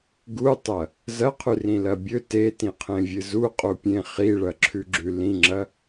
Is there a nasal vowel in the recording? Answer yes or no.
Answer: yes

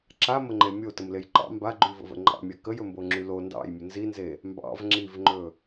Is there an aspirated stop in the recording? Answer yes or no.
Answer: no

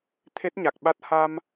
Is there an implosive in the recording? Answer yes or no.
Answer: yes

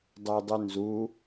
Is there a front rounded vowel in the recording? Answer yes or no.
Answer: yes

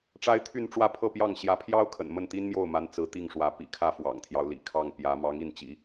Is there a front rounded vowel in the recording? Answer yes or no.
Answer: yes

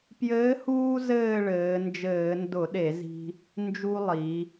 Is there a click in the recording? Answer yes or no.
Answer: no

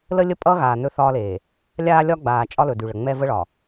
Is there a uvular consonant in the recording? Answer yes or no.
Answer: no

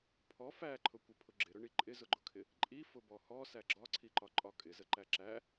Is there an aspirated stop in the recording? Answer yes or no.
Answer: yes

